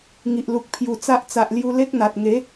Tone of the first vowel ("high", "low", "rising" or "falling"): low